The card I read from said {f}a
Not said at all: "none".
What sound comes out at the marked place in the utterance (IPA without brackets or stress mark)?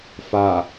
f